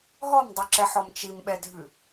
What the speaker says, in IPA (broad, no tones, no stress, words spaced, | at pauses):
ɦɔmdˤʉǁɛ ħɔmt͡ʃimɓɛdʱʉ